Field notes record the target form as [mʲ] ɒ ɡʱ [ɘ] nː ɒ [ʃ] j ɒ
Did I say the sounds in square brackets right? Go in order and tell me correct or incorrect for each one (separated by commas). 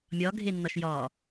correct, incorrect, correct